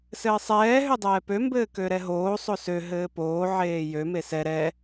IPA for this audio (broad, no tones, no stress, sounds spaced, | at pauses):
s ɘː sˤ ɛː ɦ ø dˤ ɛː p ø m b ɘː k ø ɾ ɛ ɦ oː sˤ o s ø ɦ ɘː p oː ʕ eː j ø m e s ɛ ɾ ɛ